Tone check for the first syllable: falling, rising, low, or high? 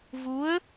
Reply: rising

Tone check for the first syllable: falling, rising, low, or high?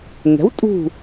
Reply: rising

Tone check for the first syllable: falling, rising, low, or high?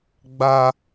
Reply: high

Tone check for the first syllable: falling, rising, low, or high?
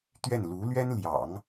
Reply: falling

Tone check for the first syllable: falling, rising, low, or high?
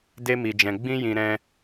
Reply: high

